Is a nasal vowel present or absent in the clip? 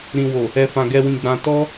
present